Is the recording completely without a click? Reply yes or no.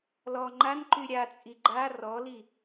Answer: no